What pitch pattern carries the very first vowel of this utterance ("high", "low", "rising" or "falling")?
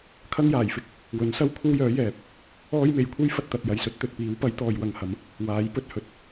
high